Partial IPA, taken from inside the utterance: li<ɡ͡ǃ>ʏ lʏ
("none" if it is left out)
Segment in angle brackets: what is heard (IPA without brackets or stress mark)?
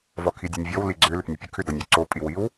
ɡ͡ǀ